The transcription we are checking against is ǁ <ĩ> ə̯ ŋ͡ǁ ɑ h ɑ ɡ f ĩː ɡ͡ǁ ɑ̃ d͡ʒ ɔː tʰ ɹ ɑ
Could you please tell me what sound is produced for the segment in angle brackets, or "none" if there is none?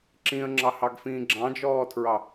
ĩ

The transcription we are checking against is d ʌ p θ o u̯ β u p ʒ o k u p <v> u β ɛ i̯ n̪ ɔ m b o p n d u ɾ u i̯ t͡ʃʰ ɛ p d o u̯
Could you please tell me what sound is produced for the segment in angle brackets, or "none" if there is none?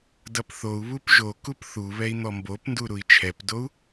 θ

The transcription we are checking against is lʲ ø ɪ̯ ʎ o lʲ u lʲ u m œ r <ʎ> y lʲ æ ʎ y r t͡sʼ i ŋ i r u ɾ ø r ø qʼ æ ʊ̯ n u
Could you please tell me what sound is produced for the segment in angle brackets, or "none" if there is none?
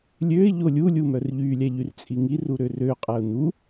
ʎ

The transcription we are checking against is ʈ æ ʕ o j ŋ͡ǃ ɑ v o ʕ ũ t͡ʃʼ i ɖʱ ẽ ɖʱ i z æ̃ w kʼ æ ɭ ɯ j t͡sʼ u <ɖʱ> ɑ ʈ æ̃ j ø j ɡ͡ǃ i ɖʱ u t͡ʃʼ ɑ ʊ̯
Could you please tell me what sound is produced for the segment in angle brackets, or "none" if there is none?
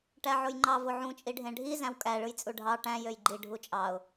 ɖʱ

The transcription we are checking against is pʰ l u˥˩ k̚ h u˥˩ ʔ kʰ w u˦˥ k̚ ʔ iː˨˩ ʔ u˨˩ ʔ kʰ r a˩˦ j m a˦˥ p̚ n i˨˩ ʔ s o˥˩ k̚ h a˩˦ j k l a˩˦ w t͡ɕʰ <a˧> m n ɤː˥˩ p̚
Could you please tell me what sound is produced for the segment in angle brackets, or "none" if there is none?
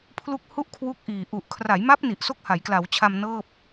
a˧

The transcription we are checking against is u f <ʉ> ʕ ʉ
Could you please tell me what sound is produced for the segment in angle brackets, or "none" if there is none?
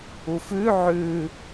ʉ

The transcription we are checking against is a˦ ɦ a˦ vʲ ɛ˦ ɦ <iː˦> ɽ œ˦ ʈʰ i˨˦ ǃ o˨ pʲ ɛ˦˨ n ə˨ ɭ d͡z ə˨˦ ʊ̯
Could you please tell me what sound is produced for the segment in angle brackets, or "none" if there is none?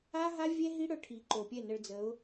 i˦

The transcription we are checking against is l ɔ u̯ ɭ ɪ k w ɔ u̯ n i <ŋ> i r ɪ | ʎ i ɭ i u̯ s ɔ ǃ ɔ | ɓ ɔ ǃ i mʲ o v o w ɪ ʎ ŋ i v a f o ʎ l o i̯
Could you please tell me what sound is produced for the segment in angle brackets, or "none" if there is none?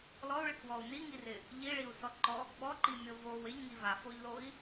ŋ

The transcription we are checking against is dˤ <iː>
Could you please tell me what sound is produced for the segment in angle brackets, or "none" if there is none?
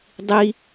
i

